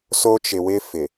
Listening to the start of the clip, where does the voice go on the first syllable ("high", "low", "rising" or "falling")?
high